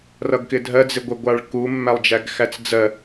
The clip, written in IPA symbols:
r ʌ ɡ k ɪ dʱ ɜ d͡z ɪ ɡʷ ɪ ɡʷ ɑ ɭ k u mː æ lˠ d͡ʒ æ ɡ x æ t͡s d͡z ɜ

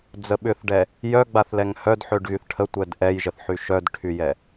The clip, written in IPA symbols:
d͡z ə ɓ ʏ θ ɖ ɛ | j œ ɡ͡b a θ l ɛ ŋ h œ d ħ ø ɖ ɣ y θ ʈʰ ə tʷ ɛ d ʔ ɛ j ʒ ə θ ħ y ʃ œ d ʈʰ y j ɛ

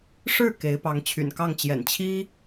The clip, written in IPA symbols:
ʂ ɻ̩˥˩ k e˧˥ ɪ̯ p ɑ˧˥ ŋ t͡ɕʰ y̰˨˩ n k ɑ˥˩ ŋ t͡ɕ j ɛ̰˨˩ n t͡ɕʰ i˥

